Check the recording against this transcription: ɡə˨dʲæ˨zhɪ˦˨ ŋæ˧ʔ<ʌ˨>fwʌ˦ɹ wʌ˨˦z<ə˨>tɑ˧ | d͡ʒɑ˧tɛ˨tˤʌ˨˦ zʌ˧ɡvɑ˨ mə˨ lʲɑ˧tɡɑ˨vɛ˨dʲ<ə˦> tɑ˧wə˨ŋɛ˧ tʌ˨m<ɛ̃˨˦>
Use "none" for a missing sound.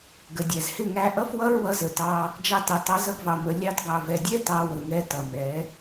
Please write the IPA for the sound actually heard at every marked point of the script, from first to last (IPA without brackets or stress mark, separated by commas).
ʌ˦, ə˨, ɛ˦, ɛ˨˦